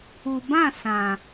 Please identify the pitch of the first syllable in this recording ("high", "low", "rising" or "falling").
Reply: low